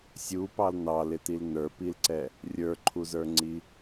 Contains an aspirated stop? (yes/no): yes